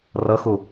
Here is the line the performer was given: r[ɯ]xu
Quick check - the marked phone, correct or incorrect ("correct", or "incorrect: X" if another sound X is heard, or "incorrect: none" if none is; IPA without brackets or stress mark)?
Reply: incorrect: ɤ